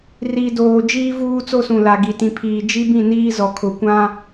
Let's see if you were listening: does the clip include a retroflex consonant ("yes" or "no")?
no